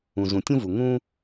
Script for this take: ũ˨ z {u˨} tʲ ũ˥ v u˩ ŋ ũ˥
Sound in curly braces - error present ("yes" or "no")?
yes